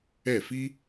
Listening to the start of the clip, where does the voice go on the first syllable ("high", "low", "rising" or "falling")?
falling